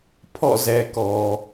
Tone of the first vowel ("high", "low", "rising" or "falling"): falling